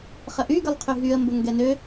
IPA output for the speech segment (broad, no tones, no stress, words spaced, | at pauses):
χəʔyɡəlˠqʰy ɦyə̯mbəŋ ɡɛnø